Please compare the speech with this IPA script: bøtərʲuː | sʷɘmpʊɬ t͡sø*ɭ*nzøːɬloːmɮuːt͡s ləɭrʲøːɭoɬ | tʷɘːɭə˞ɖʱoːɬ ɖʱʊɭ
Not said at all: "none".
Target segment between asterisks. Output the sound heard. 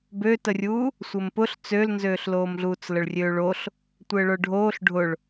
l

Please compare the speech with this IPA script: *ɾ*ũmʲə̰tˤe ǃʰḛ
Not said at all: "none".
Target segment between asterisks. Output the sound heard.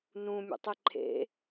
n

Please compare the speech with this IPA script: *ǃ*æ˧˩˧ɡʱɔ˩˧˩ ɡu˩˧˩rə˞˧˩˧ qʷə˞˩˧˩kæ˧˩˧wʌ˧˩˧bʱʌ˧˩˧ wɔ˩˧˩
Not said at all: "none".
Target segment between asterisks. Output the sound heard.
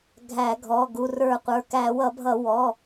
ɡʱ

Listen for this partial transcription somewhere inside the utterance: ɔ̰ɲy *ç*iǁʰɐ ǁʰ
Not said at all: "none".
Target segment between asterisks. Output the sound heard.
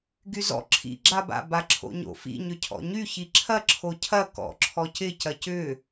ç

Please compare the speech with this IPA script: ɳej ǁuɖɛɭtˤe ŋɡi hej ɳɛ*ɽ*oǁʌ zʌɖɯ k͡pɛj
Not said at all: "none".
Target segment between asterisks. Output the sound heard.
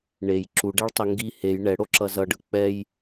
ɽ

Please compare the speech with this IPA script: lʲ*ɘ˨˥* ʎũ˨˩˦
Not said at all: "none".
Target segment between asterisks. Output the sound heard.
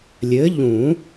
ɘ˨˥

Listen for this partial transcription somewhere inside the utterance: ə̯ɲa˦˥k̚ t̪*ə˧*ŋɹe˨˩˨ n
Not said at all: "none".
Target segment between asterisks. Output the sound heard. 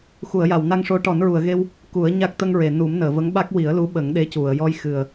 ə˧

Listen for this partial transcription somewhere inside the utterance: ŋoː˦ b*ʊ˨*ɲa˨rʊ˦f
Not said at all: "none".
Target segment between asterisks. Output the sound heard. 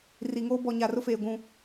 ɔ˨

